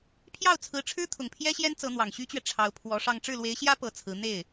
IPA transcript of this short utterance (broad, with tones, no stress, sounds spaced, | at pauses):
pʰ j ɑ˥˩ ʊ̯ t͡sʰ ɹ̩˧˥ ʈ͡ʂʰ ɻ̩˥ t̪ʰ ʊ˨˩ ŋ pʰ j ɛ˥ ɕ j ɛ˥ n t͡s ɤ˧˥ n̪ w ɑ˨˩ ŋ ɕ y˥ t͡ɕ ɥ ɛ˨ ʈ͡ʂʰ ɑ˧˥ ʊ̯ pʰ w ɔ˧˥ ʂ ɑ˥˧ ŋ ʈ͡ʂ ɻ̩˥˩ l w e˧˥ ɪ̯ ɕ j ä˥ p ɤ˧˥ t͡sʰ ɹ̩˧˥ n̪ e˥˩ ɪ̯